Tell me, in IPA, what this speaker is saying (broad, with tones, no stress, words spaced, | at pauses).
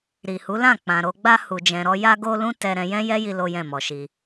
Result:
ɾi˨hu˨˦lã˦˨ k͡pã˨ɾo˧ɡ͡ba˦ hu˧d͡ʒɛ̃˧ɾɔ˦ ja˦ɡo˦ lũ˦ tɛ˧ɾɛ̃˧ jɛ̃˦jɛ˦ji˧ lo˦jɛ̃˦˨mɔ˨ʃi˧